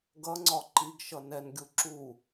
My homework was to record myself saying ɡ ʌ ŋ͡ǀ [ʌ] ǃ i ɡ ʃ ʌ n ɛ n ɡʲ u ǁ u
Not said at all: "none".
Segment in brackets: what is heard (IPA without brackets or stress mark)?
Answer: ɒ